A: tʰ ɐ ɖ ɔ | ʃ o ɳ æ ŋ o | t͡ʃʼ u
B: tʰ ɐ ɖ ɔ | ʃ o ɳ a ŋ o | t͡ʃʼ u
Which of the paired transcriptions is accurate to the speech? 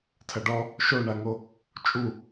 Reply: B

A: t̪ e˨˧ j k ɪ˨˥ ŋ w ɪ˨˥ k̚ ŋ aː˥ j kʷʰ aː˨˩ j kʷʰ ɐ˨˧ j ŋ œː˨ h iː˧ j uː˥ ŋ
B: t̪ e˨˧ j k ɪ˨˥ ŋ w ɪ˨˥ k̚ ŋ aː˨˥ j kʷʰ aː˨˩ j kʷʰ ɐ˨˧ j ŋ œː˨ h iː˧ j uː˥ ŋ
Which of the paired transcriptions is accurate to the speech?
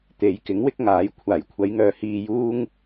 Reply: B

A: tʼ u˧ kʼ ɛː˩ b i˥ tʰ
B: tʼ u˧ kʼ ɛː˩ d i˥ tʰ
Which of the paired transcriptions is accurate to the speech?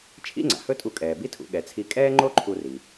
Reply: A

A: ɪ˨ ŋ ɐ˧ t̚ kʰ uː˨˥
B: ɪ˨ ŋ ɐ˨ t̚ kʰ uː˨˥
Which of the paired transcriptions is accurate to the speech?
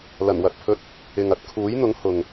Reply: A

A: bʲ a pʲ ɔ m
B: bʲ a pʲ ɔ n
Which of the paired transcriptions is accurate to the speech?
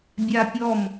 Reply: A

